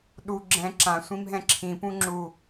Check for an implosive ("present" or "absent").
present